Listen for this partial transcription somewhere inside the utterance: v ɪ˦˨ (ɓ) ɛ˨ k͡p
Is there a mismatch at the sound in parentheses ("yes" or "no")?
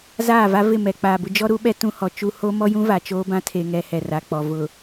yes